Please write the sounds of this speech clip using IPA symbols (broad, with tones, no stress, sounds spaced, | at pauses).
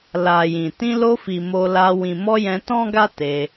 l a˨ j ĩ˨ t ĩ˧ l o˧ f i˨ m o˧ l a˧ w ĩ˨ m ɔ˧ j ɛ̃˧ t ɔ̃˦ ɡ a˦ t e˧